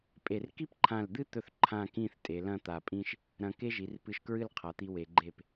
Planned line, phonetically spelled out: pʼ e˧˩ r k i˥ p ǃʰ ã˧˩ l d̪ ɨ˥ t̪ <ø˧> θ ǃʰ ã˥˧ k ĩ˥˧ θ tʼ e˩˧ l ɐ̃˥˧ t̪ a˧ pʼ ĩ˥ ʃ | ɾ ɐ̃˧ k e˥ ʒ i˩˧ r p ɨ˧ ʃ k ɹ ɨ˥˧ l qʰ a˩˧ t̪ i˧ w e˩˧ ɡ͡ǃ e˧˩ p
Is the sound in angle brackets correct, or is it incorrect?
incorrect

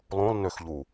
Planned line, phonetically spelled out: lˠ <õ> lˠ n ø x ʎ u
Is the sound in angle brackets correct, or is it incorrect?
correct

